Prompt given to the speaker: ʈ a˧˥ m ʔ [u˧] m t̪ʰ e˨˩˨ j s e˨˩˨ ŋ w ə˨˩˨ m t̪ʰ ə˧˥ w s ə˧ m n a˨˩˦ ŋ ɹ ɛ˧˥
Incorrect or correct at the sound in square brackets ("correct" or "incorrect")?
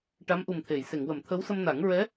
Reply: incorrect